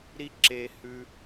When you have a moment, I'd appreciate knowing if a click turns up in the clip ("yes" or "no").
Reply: yes